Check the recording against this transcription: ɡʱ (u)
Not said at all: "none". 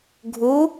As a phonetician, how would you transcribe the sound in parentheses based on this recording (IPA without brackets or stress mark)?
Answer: u